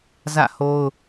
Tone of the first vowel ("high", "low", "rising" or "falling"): falling